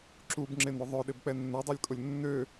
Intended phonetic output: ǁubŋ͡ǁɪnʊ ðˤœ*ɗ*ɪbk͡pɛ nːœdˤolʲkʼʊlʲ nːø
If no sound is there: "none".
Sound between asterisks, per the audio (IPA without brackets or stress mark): ɗ